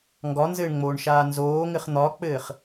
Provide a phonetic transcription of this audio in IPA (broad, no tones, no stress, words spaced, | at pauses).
ŋɡɒnzɘːɳŋ͡moːɳʃaː nzoːŋɘχ n̪ɒk͡pɘːχ